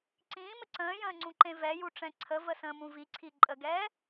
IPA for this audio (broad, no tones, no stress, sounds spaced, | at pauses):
ǀ ĩː m ə ǀ ə̃ː j ə̃ː ŋ͡ǀ ũ ǃ ẽ v ɛ j u ʈ͡ʂ ɛ̃ ǀʰ ə v ə s ə̃ː m ũ v i ǀʰ i ǃʼ ə ɡ ɛː